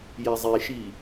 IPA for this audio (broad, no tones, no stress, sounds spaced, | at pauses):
j ɛ zˤ i ʃ i